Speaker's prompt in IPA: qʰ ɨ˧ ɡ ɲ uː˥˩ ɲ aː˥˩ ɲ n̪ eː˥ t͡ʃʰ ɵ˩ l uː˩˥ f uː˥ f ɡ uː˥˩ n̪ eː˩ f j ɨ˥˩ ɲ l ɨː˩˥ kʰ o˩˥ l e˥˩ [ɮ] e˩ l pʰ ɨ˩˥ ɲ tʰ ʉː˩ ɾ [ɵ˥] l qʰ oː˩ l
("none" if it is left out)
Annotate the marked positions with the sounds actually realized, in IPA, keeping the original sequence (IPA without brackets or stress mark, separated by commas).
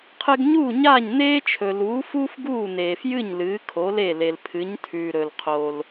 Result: l, ɵ˩